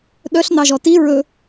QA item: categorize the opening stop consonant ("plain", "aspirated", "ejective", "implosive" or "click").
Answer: implosive